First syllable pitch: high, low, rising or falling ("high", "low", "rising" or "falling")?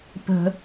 high